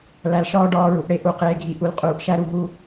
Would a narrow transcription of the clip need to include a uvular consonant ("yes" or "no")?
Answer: yes